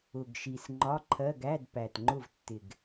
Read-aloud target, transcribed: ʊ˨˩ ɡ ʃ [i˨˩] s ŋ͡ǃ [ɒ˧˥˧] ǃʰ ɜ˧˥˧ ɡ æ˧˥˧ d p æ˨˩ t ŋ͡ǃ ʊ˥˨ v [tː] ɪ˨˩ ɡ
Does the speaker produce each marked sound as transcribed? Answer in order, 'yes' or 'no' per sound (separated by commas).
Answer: yes, yes, yes